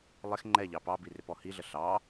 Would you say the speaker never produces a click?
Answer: no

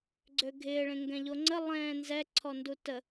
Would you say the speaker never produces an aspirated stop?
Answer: no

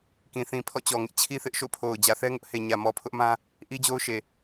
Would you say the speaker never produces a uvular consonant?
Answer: yes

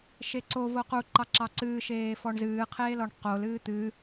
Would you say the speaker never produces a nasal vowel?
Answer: yes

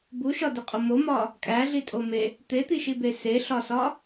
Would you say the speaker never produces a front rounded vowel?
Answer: yes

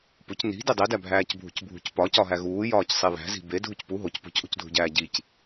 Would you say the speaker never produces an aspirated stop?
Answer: yes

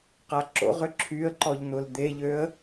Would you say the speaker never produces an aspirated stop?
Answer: no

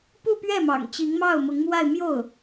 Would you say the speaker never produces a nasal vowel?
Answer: yes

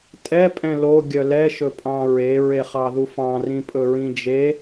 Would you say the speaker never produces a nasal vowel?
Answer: no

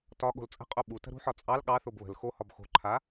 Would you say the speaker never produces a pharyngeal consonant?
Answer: no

